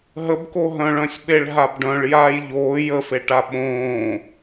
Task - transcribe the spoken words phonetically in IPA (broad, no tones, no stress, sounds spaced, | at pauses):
ɦ ə b k o ɦ œ̃ ɭ œ̃ sʲ ɓ e ɭ ɦ a b ɖ œ̃ ɭ j aː j ʎ oː j ə f e ʈ a ɓ õː